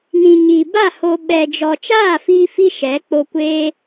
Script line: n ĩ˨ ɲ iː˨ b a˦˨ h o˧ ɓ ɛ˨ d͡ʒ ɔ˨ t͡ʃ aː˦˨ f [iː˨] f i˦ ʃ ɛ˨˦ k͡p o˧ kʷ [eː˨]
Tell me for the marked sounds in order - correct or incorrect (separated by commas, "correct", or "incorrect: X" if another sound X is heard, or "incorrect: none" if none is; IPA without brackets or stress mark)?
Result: incorrect: iː˧, incorrect: eː˧